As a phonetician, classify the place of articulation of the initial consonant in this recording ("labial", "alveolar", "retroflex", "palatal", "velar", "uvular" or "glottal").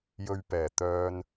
palatal